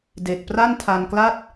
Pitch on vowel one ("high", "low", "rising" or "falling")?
low